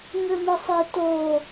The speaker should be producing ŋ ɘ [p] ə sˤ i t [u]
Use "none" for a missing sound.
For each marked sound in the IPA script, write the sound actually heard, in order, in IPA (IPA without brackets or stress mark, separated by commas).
m, o